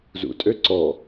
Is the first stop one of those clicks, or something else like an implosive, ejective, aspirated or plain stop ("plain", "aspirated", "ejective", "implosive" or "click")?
ejective